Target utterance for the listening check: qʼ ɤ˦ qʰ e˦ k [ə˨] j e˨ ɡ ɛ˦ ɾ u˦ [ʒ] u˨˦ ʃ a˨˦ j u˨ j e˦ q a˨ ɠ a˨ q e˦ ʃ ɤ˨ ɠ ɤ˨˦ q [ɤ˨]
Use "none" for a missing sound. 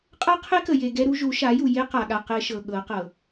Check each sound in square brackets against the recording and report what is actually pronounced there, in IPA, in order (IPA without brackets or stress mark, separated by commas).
ə˨, ʒ, ɤ˨